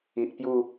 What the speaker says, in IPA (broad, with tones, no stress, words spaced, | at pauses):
i˨ʔpju˥˧